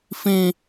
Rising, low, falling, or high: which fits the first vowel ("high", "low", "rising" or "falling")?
high